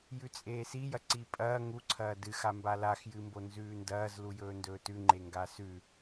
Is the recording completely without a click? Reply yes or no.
no